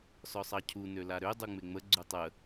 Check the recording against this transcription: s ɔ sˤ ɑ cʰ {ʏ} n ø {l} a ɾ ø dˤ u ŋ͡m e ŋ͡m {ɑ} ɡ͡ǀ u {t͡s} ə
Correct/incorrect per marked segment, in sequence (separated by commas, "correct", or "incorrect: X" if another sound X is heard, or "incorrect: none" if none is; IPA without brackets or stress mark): incorrect: u, correct, incorrect: ə, incorrect: tˤ